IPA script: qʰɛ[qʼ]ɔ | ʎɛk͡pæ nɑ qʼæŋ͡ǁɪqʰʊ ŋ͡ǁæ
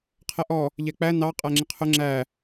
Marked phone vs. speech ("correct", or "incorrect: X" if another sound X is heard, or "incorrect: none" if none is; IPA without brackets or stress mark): incorrect: ʔ